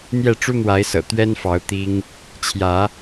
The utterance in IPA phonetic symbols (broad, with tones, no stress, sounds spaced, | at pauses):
n̪ j ɛ˥˨ ʈ͡ʂ u˦ n̪ w a˨˦ ɪ̯ s ɤ̰˨˩ t̪ ɥ ɛ˦ n f ɑ˨˦ ʊ̯ t̪ i˦ ŋ | t͡ɕʰ j ä˨˦